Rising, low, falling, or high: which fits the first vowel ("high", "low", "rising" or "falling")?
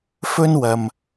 high